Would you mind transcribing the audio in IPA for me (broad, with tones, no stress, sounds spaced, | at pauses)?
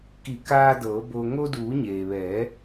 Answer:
k i˧˩ k aː˧ d ɤː˩˧ b o˧ ŋ o˧ d uː˩˧ ɲ eː˩ ʋ ɛː˩˧